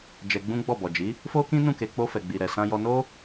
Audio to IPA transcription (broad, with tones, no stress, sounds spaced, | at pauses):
d͡ʒ ɛ˧ ɡ͡b ũ˦ ɡ͡b ɔ˦˨ b ɔ˨ d͡ʒ i˨˦ | f o˦ k ĩ˦ n ũ˦˨ k e˧ k͡p o˧ f ɛ˨ ɡ͡b i˨ ɾ ɛ˨ s ã˧ j ɔ˧ n o˦